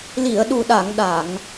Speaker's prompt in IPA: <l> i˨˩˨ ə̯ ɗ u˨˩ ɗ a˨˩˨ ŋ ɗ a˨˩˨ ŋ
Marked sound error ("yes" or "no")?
no